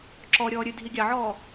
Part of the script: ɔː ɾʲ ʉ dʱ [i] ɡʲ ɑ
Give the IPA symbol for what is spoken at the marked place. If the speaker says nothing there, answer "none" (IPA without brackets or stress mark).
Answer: i